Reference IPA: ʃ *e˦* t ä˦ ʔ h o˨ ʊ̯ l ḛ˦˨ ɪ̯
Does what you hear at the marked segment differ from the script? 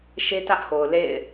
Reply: no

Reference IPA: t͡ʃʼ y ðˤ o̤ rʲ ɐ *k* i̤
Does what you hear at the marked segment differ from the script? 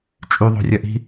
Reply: yes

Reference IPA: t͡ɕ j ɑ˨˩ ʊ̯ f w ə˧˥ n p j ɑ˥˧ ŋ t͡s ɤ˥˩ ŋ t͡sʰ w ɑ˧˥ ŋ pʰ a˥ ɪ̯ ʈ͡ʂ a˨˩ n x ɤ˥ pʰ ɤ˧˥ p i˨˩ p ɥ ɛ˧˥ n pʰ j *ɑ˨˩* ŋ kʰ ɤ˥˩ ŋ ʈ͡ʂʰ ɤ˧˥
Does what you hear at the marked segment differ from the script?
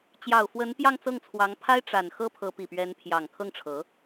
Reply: no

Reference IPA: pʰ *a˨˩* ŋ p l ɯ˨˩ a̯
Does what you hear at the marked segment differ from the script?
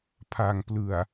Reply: no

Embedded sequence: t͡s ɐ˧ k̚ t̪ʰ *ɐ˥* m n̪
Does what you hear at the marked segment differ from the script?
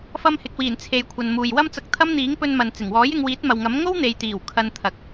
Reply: no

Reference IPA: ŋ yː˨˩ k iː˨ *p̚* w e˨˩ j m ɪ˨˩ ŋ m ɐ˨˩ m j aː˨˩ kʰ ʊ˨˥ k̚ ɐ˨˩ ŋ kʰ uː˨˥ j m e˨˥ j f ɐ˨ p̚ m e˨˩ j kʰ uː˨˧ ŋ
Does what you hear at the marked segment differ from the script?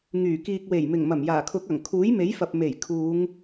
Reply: yes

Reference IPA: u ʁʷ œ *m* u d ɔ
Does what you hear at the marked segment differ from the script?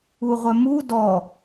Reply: no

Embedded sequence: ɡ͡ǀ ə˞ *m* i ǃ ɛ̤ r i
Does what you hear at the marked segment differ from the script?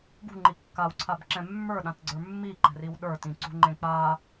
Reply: yes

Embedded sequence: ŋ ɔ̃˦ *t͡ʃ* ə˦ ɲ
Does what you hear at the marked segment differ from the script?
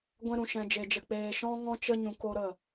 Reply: no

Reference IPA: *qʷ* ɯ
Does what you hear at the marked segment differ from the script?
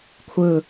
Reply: yes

